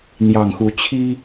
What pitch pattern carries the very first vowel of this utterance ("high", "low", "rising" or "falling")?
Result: low